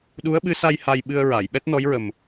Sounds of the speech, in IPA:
ɗ u˧˥ ə̯ ɓ ɨ˧˥ s a˧ j h a˧ j ɓ ɨ˧ ə̯ ɹ a˨˩˨ j ɓ ɛ˦˥ t̚ n ɔ˧˥ j ɹ ə˨˩ m

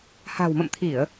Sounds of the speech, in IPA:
h a̤˨˩ w m ə̰˧˨ m t̪ʰ i˧˩˨ ə̯

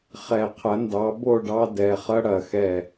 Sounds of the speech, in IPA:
χ ɛ˧˩˧ qʰ ɐ˨˥ n d ɑ˨˥ b o˥˨ ɖ ɑ˦ d ɛ˩˧˩ χ ɐ˦ ɽ ɐ˧˩˧ x ɛ˧˩

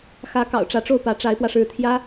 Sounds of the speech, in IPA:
x ä˧˥ k ɑ̰˨˩ ʊ̯ ʈ͡ʂ ä˧˥ ʈ͡ʂ o˥˩ ʊ̯ p ä˧˥ ʈ͡ʂ a˧˥ ɪ̯ p w ä˧ ʂ ɻ̩˥˩ t̪ʰ j ä˥

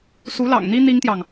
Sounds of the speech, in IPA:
s u˧˥ l ɑ̰˨˩ ŋ n̪ i˥ n̪ i˥ ŋ t̪ j ɑ˨ ŋ

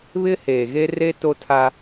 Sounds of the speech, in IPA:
β ɪ˦ h eː˨ ɣ e˦ r e˦ t o˦ tʰ a˦

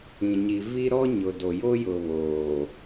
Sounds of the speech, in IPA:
ĩ˨ ɲ i˨ v i˦ ɾ ɔ˦ ɲ ʊ˨ d o˨ j o˦ j ʊ˨ β oː˨

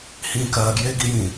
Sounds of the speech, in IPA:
h ĩː k ɜː ɡ j eː ɡ i j ĩː

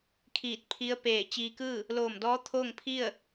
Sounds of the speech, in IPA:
kʰ iː˧˩ t̚ pʰ i˧˥ ə̯ p eː˧˩ t͡ɕ iː˧ k ɯː˥˨ | l oː˧˩ m d ɔː˧˥ t̪ʰ oː˥˨ ŋ pʰ i˥˨ ə̯

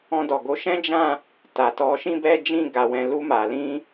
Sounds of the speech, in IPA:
ɔ̃˧ d ɔ˨ ɡ o˨˦ ʃ ɛ̃˦ d͡ʒ ã˦˨ | t a˨ t ɔ˨˦ ʃ ĩ˦ b ɛ˦ d͡ʒ ĩ˦˨ ɡ a˨ w ɛ̃˨ l u˧ m a˨ l ĩ˧

